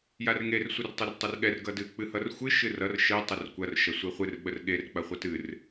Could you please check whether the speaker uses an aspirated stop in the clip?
no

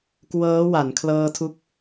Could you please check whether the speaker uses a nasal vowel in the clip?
no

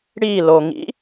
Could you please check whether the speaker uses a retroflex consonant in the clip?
yes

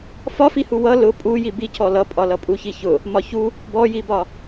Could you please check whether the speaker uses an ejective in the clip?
yes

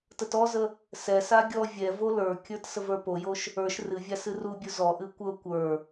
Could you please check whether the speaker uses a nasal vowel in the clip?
no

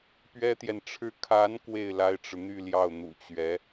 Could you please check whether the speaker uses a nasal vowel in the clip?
no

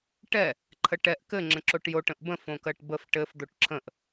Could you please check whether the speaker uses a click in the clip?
yes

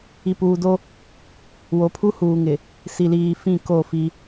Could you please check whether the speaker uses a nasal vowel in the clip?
yes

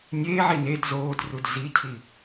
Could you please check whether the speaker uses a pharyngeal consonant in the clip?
yes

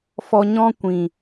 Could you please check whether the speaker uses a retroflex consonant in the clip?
no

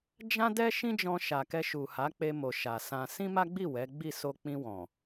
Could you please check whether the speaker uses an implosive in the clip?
no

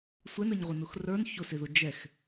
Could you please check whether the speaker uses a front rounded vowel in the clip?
no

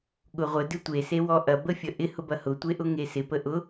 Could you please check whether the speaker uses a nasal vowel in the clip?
no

